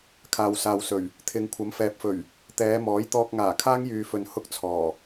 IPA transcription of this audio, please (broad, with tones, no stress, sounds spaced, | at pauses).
kʰ aː˨ w s aː˨ w s ɵ˨˩ ɥ | t̪ʰ ɪ˨ ŋ kʷʰ ɐ˨˥ m f ɛː˨ p̚ f ɵ˨˩ ɥ | t̪ ɛː˨˧ m ɔː˨˥ j t̪ ɔː˧ k̚ ŋ aː˨˩ kʰ aː˥ ŋ j yː˨ f ɵ˨ n h ʊ˥ k̚ t͡sʰ ɔː˨˩